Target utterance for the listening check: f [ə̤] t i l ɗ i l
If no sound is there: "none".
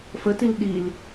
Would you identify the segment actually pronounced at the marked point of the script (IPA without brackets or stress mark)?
ə